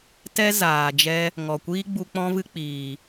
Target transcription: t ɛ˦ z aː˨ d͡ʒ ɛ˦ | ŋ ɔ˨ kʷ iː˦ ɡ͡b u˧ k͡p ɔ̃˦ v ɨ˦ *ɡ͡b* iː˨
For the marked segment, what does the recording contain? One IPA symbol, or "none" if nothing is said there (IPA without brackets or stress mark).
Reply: k͡p